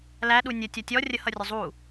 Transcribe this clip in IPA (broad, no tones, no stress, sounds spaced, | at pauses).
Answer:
l æ ɗ u nʲ ə tʲ ʌ tʲ ɔ rʲ ə h ʌ rʲ ʊ zˤ u